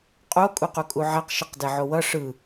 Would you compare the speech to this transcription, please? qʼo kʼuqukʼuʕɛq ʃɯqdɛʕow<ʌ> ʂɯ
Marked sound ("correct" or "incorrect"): correct